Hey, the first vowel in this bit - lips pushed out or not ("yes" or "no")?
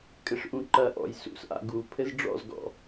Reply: no